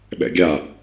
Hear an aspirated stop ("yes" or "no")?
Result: no